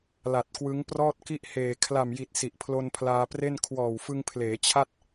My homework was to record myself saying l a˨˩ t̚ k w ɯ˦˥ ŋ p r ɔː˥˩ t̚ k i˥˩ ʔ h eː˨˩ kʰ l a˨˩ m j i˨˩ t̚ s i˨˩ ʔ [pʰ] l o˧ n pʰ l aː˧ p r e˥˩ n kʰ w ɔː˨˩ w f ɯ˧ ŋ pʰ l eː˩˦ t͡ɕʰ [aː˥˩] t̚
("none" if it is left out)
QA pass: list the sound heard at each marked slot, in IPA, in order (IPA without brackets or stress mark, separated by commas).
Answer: pʰ, a˥˩